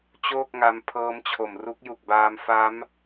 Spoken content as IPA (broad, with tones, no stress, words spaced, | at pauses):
t͡ɕoː˥˩k̚ŋa˧m pʰɤː˦˥mt͡ɕʰo˨˩m ru˦˥k̚ju˨˩k̚baː˧m fa˦˥m